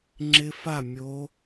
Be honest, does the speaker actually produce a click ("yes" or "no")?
yes